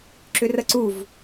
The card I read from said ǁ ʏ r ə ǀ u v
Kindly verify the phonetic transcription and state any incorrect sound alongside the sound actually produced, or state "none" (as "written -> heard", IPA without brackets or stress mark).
none